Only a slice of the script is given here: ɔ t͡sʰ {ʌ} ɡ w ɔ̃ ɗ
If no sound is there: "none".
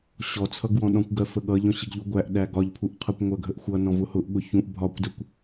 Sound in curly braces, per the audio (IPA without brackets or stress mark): ʌ